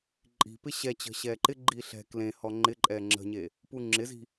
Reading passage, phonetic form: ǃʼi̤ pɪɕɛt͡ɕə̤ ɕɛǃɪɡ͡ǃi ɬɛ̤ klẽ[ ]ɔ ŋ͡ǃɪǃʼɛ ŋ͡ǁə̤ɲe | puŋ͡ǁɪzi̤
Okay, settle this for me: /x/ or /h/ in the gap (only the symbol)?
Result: h